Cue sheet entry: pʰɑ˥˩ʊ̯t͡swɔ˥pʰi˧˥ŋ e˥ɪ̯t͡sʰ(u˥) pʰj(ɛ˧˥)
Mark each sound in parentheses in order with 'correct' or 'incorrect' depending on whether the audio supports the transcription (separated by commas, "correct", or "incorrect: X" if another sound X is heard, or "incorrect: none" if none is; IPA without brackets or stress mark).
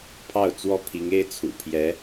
incorrect: ṵ˨˩, correct